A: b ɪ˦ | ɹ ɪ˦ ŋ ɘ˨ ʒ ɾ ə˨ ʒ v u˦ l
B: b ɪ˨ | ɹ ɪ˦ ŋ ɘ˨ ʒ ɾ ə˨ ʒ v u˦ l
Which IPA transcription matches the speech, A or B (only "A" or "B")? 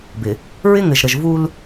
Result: B